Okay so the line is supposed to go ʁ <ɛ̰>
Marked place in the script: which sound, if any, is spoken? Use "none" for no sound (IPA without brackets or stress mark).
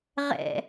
ɛ̰